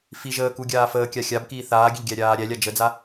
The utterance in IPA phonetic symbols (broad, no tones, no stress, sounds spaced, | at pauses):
f i ʒ əː k u ɡʲ aː f əː kʲ a xʲ a b k iː θ aː ɡʲ ə ʎ ɡʲ æ ɾʲ aː ɾʲ æ lʲ a d͡ʒ ə d͡z a